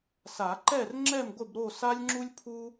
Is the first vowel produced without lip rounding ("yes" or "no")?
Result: yes